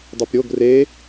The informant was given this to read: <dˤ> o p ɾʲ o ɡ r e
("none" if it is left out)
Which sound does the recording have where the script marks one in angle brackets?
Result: dˤ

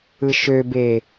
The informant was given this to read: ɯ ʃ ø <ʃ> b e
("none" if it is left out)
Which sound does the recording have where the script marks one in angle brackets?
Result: none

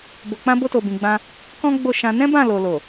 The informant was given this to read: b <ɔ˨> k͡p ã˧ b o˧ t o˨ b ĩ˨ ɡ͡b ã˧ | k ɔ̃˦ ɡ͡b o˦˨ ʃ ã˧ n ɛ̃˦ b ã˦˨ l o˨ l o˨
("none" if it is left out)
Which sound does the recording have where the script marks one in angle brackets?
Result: o˨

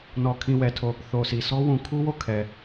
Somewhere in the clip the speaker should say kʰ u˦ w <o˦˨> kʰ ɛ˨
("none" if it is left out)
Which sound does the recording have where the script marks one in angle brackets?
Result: o˦˨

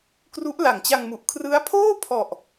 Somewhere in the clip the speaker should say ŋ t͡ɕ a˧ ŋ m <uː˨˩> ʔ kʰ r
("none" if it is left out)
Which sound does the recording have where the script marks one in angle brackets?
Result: u˨˩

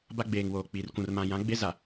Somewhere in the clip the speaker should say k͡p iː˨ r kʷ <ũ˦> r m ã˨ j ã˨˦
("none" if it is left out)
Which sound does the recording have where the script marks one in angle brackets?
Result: ũ˨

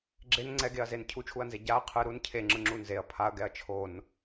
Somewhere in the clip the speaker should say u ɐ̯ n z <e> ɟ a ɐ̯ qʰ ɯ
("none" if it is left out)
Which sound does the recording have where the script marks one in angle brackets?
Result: e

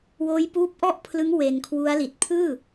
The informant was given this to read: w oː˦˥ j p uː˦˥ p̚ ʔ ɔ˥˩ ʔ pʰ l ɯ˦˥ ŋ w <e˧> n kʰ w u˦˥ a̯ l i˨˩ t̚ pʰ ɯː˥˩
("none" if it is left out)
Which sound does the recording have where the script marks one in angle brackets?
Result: e˧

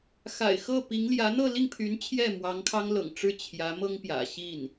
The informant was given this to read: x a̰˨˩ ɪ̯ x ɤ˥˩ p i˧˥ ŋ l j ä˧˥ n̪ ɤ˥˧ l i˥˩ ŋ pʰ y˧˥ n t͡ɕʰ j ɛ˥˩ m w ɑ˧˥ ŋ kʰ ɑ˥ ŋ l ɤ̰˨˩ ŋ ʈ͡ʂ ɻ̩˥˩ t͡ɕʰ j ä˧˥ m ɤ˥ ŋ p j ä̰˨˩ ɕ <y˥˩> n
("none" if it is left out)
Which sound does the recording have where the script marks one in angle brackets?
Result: i˥˩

